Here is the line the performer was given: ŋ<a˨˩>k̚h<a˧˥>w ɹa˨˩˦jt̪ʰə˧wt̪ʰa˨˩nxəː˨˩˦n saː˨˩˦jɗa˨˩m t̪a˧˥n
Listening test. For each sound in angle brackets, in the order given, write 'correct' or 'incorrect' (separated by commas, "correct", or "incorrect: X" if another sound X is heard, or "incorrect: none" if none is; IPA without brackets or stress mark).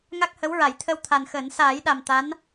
incorrect: a˦˥, incorrect: ə˧˥